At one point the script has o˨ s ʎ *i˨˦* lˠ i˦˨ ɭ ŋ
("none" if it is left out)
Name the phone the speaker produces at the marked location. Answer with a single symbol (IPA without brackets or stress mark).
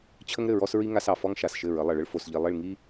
i˨